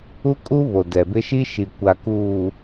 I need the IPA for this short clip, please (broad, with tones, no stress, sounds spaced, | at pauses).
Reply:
u˦ kʼ u˦ β o˨ d ɛ˨ b ɪ˦ ʃ i˦ ʃ i˨ kʷ a˨ k uː˨